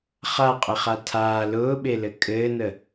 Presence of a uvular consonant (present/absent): present